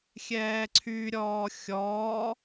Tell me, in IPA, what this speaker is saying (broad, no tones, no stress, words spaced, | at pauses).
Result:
xʲɛːǀʰyɾʲɔː xʲɔː